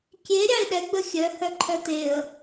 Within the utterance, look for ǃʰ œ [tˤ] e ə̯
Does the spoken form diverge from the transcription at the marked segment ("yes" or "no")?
yes